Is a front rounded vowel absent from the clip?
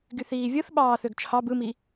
no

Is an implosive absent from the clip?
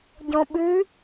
no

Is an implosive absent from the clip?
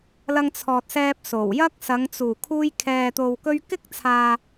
yes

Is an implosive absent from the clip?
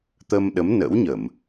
no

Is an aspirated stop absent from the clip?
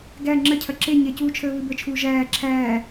no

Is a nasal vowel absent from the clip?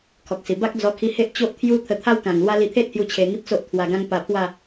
no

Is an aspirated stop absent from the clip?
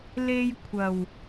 no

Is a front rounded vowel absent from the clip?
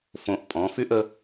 no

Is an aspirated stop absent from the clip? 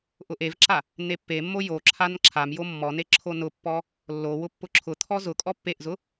no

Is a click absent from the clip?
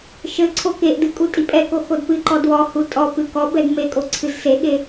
no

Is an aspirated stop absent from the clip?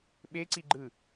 yes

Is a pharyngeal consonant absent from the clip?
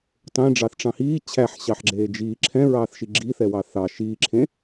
no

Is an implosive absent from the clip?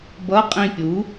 yes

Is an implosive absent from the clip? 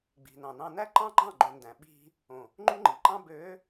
no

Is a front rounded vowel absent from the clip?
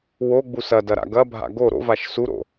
yes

